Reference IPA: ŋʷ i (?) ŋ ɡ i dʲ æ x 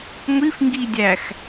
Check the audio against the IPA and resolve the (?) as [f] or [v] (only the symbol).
f